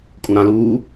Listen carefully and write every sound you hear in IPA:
kʼũɾã luː

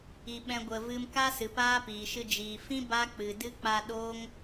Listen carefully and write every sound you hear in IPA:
i˧ɓɛ̃˦ɡʷə˧vɨ˦m ka˦sɨ˨ paː˦piː˨ʃɨ˧ d͡ʒiː˨fĩ˦ ba˦k͡pɨ˨dɨ˦ k͡pa˧ɗoː˦ŋ

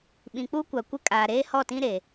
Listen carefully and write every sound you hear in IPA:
ɓĩ˨k͡pu˦kʷa˨kʷɪ˦ kʼaː˨ɾeː˦hɔ˦˨tĩ˦ ɾe˨

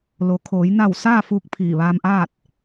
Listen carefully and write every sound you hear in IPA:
lo˩˧ kʰoː˩˧j na˧˩w saː˥˨fuː˧k̚ pʰiː˧˩ʋaː˧mʔaː˥˨t̚

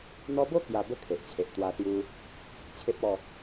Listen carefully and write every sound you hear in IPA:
n̪ɔ˧bo˥˧ kja˥˧ bə˦ kʰe˨ʔt͡ɕʰe˨ʔ t̪wa˧ sju˧ | t͡ɕʰe˦p̚ɔ˥˧

